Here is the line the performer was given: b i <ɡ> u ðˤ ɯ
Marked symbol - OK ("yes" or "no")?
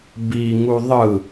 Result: no